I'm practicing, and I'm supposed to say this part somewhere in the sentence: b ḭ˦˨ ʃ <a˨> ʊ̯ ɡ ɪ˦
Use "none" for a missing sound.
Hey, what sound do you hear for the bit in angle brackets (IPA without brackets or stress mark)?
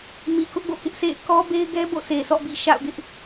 a̰˦˨